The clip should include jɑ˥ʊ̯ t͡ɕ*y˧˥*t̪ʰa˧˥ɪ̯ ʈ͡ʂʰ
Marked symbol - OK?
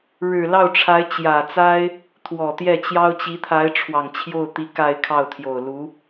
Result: no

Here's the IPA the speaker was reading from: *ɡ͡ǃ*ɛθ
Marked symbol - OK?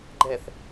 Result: yes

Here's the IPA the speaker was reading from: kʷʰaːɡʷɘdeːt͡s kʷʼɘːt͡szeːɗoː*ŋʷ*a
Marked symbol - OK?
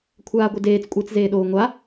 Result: yes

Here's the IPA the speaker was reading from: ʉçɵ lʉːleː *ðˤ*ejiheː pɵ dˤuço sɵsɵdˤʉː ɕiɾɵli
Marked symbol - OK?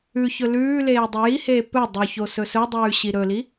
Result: no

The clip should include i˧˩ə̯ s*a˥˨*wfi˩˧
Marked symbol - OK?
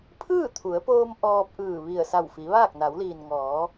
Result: no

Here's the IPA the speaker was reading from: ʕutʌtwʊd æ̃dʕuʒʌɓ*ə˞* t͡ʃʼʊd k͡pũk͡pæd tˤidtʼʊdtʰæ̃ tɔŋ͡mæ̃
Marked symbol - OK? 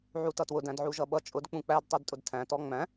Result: no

